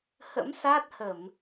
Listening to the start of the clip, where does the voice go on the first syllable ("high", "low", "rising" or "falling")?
rising